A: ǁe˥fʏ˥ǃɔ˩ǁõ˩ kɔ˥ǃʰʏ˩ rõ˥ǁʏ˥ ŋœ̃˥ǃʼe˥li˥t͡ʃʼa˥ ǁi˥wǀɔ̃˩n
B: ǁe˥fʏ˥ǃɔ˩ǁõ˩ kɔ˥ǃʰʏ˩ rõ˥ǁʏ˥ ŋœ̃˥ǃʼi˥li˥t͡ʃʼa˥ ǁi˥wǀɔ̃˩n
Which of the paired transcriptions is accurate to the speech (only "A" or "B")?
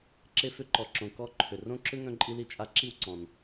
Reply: B